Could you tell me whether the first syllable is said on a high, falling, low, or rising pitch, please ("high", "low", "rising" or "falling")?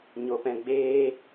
low